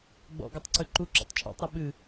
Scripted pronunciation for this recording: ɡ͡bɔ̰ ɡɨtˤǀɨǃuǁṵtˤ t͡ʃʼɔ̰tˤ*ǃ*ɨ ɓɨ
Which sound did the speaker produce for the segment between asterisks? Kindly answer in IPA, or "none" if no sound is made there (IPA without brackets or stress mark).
ɾ